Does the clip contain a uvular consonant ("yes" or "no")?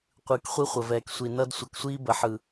yes